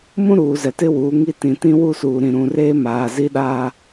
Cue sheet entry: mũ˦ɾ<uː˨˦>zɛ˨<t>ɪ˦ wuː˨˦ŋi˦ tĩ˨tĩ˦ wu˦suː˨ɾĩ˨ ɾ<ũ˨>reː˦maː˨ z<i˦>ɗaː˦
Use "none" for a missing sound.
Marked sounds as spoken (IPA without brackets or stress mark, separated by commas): uː˨, t, ũ˨, i˦